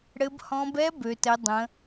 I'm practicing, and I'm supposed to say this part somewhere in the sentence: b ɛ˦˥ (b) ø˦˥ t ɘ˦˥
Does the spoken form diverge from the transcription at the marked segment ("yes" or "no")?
no